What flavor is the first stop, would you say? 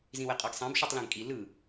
ejective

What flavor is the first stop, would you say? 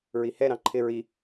click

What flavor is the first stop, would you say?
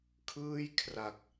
aspirated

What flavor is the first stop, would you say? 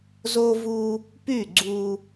plain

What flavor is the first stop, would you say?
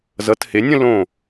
plain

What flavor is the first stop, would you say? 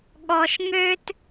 implosive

